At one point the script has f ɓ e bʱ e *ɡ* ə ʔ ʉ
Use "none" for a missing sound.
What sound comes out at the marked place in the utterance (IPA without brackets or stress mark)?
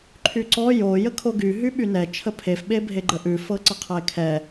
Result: ɡ͡ǃ